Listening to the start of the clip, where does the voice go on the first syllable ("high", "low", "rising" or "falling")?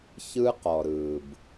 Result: high